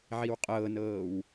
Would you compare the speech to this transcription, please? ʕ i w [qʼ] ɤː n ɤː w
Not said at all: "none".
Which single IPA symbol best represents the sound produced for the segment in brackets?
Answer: qʼ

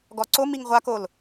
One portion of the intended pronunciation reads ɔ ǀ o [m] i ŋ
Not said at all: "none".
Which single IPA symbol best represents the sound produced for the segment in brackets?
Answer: m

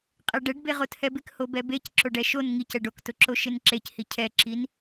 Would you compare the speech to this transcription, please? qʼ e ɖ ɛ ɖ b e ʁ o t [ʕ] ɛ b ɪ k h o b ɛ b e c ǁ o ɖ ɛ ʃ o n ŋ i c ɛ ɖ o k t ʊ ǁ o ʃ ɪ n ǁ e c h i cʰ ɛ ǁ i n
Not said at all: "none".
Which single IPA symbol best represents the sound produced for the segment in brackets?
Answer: h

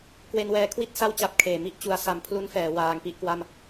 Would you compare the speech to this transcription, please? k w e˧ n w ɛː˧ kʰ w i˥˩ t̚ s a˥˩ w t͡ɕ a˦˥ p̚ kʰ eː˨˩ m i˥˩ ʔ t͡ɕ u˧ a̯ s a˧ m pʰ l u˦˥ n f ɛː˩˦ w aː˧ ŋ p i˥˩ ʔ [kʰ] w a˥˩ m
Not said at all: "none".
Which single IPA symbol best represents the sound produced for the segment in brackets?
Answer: k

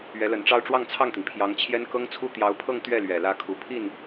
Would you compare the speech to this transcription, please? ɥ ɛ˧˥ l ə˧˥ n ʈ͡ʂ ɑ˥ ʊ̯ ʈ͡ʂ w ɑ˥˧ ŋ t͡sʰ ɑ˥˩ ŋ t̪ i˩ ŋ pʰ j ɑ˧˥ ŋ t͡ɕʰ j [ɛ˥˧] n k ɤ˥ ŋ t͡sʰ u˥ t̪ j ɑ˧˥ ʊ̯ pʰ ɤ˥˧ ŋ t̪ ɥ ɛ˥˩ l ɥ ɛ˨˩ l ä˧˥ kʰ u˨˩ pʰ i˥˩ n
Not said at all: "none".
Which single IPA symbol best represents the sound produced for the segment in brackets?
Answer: ɛ˥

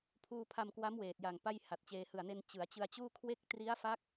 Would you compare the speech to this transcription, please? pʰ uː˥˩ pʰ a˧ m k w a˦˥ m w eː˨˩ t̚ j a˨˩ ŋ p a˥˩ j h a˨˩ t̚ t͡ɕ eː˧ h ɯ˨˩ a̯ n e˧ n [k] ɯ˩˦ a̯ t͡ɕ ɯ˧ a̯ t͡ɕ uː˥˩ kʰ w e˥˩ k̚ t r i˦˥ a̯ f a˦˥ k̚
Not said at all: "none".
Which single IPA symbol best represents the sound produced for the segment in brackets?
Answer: t͡ɕ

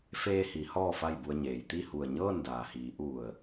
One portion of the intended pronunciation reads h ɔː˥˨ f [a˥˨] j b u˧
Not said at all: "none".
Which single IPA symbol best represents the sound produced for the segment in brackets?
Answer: a˥˨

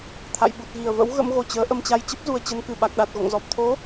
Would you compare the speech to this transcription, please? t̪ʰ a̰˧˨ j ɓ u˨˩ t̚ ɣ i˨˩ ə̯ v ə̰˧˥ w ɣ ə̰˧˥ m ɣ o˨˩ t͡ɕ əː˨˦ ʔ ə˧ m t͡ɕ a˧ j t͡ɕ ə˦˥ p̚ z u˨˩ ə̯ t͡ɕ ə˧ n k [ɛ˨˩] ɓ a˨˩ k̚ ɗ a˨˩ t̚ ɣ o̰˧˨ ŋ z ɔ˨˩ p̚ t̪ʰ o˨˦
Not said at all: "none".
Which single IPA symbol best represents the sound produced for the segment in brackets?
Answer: ɨ˨˩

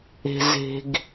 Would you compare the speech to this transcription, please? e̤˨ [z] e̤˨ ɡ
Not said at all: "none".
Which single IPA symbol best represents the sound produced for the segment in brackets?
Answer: z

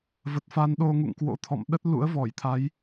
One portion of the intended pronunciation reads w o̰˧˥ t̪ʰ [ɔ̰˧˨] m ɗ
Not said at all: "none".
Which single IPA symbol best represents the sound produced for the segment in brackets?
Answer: ɔ̰˧˨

